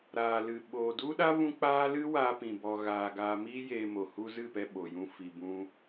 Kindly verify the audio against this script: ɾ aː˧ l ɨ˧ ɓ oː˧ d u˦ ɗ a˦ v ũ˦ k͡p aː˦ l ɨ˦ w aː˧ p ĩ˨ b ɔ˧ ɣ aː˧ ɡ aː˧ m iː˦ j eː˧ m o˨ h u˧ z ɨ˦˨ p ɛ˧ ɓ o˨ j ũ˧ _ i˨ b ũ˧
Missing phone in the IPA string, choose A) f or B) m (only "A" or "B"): A